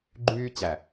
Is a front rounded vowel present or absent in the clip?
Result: present